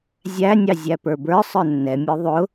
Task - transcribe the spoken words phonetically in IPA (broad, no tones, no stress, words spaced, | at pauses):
zʲæ nʲɑzʲæpə˞bə˞ sˤə˞nːɛmʲə˞ ðˤʊ